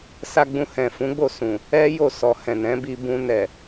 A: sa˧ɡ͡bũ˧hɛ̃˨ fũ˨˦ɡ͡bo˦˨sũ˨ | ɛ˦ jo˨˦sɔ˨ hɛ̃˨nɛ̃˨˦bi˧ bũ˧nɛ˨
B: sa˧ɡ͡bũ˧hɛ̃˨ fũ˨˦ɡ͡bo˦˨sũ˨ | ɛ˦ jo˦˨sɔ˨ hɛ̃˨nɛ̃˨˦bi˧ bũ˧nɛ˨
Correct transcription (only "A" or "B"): B